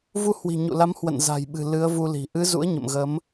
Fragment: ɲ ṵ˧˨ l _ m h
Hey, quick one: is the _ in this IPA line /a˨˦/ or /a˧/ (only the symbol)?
a˨˦